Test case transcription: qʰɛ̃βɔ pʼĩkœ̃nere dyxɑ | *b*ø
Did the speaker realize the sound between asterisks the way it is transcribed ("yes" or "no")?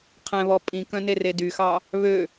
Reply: no